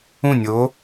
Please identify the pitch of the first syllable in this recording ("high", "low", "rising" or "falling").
falling